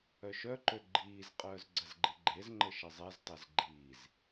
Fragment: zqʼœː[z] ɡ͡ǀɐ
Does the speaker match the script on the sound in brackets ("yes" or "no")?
yes